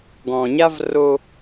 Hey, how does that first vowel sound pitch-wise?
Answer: low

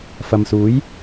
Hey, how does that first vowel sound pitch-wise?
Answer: low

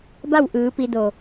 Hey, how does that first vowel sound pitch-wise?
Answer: falling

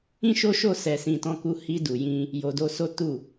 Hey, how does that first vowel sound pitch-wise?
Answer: high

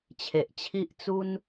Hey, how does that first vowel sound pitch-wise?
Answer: low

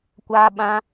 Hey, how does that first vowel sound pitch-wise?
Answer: high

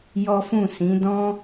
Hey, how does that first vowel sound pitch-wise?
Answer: high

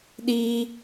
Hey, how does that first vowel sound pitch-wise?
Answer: high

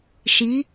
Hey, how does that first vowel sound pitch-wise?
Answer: rising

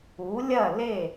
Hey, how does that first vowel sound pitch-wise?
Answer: rising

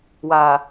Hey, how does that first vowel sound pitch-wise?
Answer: low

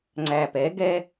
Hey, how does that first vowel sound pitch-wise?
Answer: low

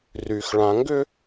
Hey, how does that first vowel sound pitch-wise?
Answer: low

